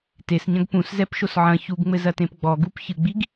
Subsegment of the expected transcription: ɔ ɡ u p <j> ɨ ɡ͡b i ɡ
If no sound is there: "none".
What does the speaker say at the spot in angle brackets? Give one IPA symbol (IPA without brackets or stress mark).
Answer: ç